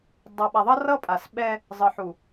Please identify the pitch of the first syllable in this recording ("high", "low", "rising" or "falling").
low